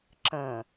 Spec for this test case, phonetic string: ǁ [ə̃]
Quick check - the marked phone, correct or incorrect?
correct